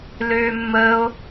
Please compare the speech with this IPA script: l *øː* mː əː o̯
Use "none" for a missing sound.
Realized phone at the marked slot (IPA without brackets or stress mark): øː